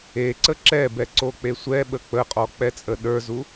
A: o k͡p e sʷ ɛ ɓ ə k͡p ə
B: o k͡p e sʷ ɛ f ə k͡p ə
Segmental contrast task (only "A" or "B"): A